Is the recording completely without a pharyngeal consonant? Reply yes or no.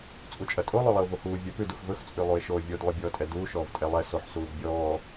no